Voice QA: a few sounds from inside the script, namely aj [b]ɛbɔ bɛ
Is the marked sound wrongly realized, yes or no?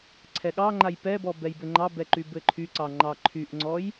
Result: yes